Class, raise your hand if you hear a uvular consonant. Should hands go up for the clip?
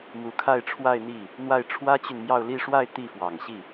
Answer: no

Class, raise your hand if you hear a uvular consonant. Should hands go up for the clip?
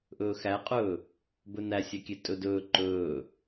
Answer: yes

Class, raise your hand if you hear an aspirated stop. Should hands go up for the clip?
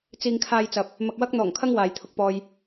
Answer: yes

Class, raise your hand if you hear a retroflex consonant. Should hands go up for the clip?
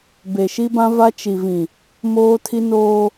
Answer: no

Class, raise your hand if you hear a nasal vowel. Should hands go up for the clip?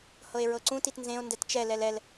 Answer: yes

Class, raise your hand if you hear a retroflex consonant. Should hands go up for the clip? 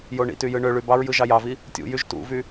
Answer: yes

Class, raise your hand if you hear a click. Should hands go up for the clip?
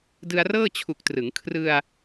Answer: no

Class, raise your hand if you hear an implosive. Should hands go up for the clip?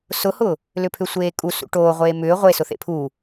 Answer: no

